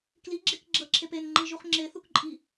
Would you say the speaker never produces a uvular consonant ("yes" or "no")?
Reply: no